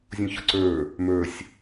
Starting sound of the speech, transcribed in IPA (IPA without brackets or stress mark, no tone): zʲ